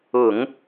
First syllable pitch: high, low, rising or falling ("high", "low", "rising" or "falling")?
low